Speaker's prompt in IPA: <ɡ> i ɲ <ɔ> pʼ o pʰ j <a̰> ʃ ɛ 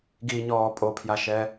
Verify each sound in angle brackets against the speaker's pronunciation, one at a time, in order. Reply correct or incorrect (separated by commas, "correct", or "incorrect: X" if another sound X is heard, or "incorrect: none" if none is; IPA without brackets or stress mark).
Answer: correct, incorrect: ɔː, incorrect: a